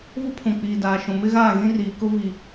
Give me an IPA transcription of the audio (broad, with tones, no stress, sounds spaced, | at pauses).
v ʊ˦ pʰ ũ˨ k͡p iː˨ d aː˨ ʃ ũ˨ m ɪ˦ ɣ aː˦˨ ɣ ĩ˦ r iː˨ k ʊ˦ v i˨